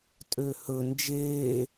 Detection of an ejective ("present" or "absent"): present